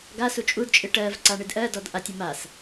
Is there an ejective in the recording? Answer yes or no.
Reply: yes